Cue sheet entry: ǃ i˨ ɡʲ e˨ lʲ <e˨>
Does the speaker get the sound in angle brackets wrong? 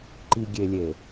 no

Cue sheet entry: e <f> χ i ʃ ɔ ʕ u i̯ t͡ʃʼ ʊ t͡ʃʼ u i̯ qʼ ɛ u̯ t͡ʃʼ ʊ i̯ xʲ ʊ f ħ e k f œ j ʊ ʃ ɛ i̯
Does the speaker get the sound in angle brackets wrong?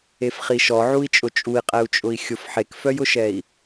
no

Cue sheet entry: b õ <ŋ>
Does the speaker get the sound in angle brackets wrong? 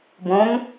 no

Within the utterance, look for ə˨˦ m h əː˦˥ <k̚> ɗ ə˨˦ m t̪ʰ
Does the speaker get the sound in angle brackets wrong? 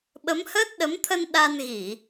yes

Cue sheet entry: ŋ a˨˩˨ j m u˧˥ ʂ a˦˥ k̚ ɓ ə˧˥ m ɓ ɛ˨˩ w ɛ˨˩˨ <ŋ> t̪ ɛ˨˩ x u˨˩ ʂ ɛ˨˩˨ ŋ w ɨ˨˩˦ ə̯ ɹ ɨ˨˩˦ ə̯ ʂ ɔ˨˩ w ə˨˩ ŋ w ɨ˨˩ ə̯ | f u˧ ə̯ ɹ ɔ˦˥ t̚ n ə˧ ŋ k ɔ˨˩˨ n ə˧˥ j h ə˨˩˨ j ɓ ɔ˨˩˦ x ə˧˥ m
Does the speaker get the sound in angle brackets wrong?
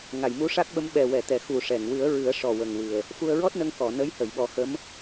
yes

